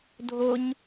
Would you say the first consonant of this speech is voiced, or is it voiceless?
voiced